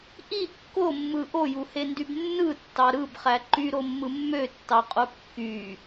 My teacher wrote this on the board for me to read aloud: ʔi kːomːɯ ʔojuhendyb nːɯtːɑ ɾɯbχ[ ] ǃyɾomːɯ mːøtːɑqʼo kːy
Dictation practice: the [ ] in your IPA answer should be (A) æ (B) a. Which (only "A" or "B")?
A